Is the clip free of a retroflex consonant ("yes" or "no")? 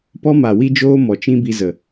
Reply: yes